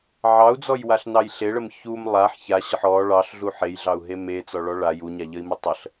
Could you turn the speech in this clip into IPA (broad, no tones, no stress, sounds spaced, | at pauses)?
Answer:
ʕ ɑ u̯ d͡z ɔ j w a ɬ n ɑ j ɬ e ɭ ə m ç u m lˠ a ħ ç a ɕ ə ħ ɔ ɭ ɑ ɬ ɮ u ħ e j ɮ ɑ u̯ ɦ e m e t͡s ɔ ɭ ɔ ɭ a j u ɲ a ʎ ə i̯ m ə tˤ ə ɬ